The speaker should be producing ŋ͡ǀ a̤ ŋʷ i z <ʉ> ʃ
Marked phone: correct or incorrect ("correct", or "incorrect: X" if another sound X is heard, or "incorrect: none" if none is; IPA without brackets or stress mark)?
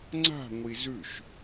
correct